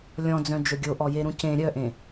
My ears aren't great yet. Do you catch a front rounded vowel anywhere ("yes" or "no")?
yes